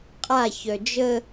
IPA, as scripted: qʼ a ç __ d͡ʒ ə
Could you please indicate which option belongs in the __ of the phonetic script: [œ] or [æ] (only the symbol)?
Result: œ